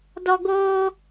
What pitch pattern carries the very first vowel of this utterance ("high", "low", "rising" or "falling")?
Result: high